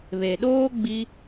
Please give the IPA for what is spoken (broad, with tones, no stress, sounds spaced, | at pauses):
β e˨ ɗ oː˦ ɡ͡b i˧